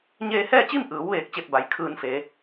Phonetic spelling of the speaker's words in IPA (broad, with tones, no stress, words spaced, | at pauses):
ɲeː˧hɛː˥˨t͡ɕi˥˨mʔɯː˩˧w ʋeː˧k̚t͡ɕe˥˨p̚ba˩j kʰɯː˧n fe˩˧